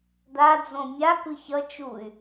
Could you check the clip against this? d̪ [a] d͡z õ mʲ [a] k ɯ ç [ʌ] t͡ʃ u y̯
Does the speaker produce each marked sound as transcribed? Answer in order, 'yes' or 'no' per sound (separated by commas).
yes, yes, yes